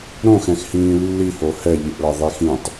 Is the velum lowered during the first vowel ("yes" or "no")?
yes